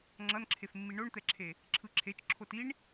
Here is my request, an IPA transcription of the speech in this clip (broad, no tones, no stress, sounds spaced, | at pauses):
ŋ͡ǁ ʌ n ǁʰ e f mː i ɳ o ɳ t̪ ɛ ǁʰ e | ǁʰ ɯ ǁʰ e t͡ʃ ǁʰ o t i ɳ